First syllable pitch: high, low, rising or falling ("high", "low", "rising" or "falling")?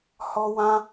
high